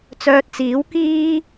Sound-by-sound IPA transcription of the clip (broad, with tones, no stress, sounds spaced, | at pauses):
t͡s œː˧ t̚ t͡s iː˨˥ w k iː˥